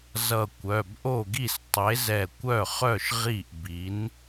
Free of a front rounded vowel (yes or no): no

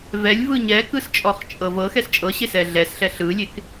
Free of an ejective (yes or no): no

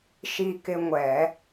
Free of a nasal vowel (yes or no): yes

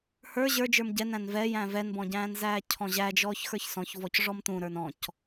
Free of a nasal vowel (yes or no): no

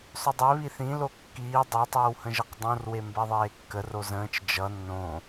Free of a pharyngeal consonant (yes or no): yes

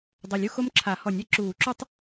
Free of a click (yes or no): no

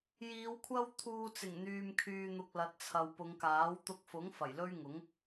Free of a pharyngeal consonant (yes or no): yes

